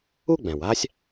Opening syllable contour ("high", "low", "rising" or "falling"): high